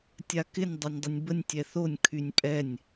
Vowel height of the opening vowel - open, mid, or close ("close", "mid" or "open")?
open